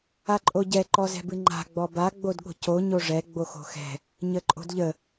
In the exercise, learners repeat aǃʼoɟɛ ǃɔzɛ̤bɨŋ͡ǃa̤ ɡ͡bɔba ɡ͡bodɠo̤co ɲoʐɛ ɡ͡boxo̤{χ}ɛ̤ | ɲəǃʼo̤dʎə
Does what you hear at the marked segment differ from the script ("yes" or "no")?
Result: yes